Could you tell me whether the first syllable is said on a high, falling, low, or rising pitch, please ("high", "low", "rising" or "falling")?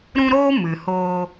high